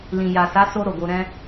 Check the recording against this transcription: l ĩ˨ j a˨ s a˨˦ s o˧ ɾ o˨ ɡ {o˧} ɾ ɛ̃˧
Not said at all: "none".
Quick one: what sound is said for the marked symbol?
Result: o˧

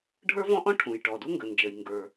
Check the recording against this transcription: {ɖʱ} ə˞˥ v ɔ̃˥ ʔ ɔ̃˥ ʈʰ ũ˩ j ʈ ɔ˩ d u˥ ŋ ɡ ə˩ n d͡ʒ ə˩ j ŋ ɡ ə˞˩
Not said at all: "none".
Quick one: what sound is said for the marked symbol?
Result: ɖʱ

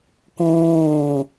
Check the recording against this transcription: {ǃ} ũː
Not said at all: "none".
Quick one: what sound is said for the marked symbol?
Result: k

